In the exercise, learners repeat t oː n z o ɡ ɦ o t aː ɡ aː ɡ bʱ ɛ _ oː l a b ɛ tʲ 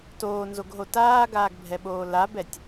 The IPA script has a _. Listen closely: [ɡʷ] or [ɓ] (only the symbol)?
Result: ɓ